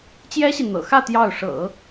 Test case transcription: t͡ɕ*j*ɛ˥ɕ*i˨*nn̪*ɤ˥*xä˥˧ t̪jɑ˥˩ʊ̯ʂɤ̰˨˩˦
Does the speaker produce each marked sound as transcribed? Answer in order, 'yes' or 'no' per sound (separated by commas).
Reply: yes, yes, no